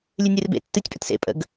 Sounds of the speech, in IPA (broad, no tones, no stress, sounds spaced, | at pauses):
lʲ ɨ nʲ ɨ r b ḛ tː ɨ tʲ pʼ ə t s ḛ pʼ ə̰ ɡ